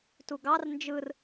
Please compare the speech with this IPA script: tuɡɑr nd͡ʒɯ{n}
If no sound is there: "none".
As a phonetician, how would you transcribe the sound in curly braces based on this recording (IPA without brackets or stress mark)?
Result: r